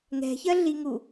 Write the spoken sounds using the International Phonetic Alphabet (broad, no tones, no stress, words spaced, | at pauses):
ŋɛ̤çɜɮiŋu